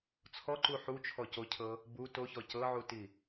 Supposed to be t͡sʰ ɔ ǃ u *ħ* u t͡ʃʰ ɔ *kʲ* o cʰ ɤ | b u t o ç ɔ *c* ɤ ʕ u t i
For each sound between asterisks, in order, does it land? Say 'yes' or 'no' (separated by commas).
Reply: yes, no, yes